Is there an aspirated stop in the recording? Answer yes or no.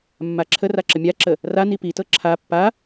yes